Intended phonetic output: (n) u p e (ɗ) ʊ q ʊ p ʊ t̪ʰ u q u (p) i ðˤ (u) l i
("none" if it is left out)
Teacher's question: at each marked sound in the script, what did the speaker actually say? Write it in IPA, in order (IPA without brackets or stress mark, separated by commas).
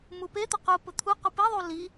m, t̪, p, u